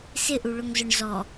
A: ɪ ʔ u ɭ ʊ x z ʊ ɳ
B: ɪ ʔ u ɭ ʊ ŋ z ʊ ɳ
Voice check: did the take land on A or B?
B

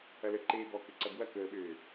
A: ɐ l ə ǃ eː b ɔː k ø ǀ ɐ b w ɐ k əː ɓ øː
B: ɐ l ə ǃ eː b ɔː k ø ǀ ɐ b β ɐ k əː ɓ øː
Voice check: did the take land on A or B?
A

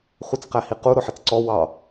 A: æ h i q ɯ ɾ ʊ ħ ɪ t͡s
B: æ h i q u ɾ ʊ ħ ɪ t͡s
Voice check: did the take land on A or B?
B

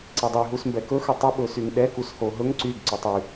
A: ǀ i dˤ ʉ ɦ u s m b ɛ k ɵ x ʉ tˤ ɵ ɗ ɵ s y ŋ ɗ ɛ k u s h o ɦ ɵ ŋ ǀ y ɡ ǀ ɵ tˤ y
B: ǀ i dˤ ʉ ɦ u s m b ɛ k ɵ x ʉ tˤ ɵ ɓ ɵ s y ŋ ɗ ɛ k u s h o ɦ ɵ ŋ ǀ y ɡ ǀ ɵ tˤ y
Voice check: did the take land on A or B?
B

